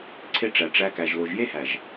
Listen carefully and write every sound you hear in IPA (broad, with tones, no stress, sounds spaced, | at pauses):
ǀʰ e˦ ʈ͡ʂ æ˨ ʈ͡ʂ æ˧ k æ˨ ʒ l o˨ ʒ j e˦ h æ˨ ʒ